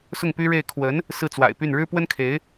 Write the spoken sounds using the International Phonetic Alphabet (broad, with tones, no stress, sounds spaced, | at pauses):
s ʊ˥˩ ŋ p y˥ ɻ e˥˩ ɪ̯ kʰ w ə˧˥ n | s ɹ̩˥˩ t͡s w a̰˨˩ ɪ̯ p y˥˩ n ɻ ɻ̩˥ p w ə˥ n kʰ e˧˥ ɪ̯